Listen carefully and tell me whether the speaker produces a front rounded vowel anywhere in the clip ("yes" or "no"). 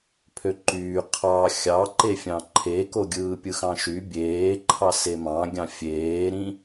yes